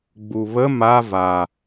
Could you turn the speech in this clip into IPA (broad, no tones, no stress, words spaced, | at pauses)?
ɡ͡buβə ma va